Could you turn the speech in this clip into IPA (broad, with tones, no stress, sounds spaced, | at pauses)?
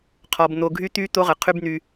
qʰ ɔ˧ b n̪ o˧ ɡʱ y˦ t̪ y˦ t̪ o˦ ʁ ə˨ qʰ y˦ b n̪ y˧